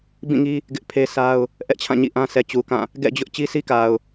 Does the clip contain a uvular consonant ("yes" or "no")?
no